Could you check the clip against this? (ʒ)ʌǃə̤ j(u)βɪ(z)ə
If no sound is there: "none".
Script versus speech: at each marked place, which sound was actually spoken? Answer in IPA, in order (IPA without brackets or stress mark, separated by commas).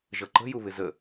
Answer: ʒ, u, z